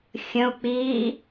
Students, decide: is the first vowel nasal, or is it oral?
nasal